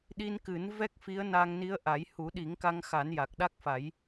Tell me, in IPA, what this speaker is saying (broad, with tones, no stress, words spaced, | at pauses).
ɗi˧nkɨ˨˩˦n vɛ˦˥k̚fi˧˥ə̯na˧ŋ ni˧˥ə̯ʔa˨˩˦j hu˨˩˦ɗi˨˩˦ŋ ka˧ŋxa˨˩˦n ja˨˩k̚ɗa˦˥k̚fa˨˩˦j